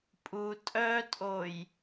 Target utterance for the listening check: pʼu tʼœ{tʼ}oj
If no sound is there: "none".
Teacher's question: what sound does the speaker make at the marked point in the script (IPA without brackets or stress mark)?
tʼ